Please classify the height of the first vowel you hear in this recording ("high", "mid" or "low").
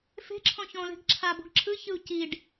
mid